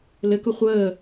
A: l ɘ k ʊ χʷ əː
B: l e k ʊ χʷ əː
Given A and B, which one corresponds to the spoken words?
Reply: A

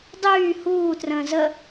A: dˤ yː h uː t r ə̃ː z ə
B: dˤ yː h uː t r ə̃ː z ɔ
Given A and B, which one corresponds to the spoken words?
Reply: A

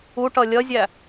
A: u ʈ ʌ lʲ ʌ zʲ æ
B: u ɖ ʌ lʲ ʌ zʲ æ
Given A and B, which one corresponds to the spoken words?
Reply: A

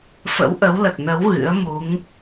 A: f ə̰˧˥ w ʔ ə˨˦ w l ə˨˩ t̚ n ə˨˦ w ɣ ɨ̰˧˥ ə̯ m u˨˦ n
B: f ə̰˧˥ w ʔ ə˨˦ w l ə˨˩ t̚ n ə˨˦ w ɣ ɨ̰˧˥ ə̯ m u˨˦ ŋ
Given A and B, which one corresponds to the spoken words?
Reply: B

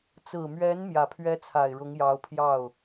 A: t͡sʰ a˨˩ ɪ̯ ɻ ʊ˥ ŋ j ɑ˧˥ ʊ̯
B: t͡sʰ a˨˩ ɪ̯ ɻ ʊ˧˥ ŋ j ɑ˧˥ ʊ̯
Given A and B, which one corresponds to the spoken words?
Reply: B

